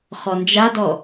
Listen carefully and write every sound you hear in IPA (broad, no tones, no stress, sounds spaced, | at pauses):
χ ɔ n d͡ʒ a d ɔ